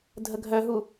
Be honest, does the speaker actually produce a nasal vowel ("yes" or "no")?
no